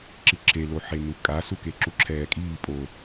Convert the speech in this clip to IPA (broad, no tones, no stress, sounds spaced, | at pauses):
ǁ i ǁʰ e l o ħ e n u kʼ a s u k e ǁ u ǁʰ ɛː kʼ iː pʼ o